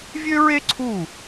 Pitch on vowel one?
high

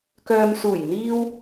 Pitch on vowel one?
low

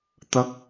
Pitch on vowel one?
high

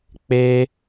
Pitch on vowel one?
high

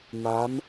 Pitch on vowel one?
rising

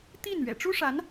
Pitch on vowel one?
falling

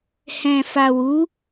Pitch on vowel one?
low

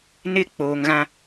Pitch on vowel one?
falling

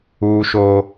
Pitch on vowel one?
high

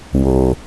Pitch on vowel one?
low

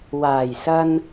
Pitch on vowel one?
low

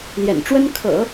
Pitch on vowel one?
low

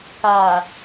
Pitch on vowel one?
low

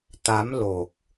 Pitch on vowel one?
rising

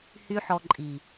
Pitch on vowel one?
high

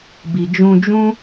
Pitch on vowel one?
low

